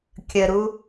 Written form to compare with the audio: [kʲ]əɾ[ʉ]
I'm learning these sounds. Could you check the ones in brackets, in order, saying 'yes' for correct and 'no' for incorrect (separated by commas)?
yes, no